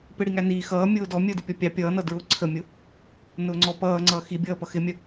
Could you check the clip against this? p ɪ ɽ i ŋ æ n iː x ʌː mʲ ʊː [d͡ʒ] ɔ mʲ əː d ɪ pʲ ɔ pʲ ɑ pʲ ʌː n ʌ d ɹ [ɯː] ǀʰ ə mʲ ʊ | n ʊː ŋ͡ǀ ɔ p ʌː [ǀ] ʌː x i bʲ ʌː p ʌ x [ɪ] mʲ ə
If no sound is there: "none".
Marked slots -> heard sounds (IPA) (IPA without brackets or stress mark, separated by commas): d, ʊː, ŋ͡ǀ, ɪ